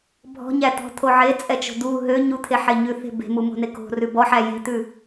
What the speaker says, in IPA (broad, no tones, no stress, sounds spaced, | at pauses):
bʱ ɔ̤ ɲ æ t̪ ɔ̤ t̪ʰ o ʕ e t͡sʼ ɛ t͡ʃ o̤ d̪ u ɦ ø ɲ u t̪ʰ e ħ e ɲ ʉ θ e̤ b e̤ m u m o̤ n e k o̤ r ʉ b ɔ ħ æ j e̤ t̪ ʉ